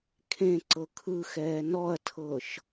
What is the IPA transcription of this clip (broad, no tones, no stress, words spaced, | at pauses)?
kʰẽ ǀɤkʰɯxɛː nɔɐ̯tʰɤʃ